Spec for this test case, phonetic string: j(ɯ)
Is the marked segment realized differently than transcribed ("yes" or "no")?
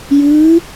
no